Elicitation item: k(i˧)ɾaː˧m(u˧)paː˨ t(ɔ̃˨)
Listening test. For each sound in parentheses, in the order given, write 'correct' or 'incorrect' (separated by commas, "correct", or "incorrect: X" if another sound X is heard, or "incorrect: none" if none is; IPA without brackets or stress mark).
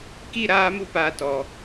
incorrect: i˦˨, correct, incorrect: ɔ˨